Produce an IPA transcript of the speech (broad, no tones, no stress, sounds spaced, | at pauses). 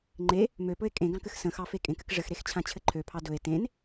ŋ͡ǃ e | m ø p ɵ e̯ kʼ ẽ ɡ ɑ̃ k ɘ x s ə̃ x ɑ f e kʼ ẽ k ɘ k ʐ ɘ x ɾ e x t͡ɕʰ ã t͡ɕʰ ɘ ǃʰ ø pʰ ɑ d ɵ e̯ t ẽ n